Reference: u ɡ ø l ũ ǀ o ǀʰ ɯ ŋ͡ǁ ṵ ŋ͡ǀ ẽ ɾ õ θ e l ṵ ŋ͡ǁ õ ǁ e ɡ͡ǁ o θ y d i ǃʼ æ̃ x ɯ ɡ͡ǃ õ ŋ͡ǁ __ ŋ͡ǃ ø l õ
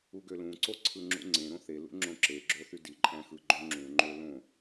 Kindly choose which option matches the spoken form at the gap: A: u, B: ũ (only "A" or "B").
B